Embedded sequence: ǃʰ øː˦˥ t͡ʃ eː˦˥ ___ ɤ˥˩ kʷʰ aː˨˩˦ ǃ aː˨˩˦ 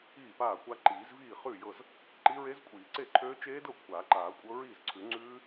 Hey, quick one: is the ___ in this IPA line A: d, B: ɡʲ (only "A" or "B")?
A